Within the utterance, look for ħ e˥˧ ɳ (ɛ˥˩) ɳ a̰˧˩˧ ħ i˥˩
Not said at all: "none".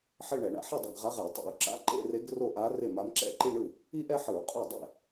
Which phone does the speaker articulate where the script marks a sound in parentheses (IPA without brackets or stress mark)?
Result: ɛ˧˩˧